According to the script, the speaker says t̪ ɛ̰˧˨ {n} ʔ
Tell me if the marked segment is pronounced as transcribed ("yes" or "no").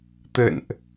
yes